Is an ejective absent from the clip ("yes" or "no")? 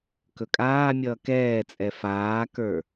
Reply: no